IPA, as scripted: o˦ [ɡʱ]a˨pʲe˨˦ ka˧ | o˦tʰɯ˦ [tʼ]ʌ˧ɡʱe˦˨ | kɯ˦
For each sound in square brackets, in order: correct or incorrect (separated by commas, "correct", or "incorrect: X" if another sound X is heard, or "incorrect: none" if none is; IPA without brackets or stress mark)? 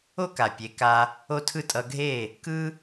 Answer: incorrect: k, correct